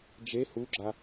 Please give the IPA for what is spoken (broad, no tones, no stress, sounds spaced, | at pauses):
d͡ʒ e h u ɡ͡ǁ a